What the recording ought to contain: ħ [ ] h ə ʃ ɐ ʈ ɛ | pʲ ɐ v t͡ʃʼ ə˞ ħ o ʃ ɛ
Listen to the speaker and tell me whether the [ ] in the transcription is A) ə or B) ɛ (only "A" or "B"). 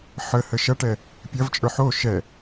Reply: A